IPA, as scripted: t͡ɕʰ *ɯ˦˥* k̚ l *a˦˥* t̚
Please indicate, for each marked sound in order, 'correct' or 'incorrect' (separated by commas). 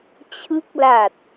correct, incorrect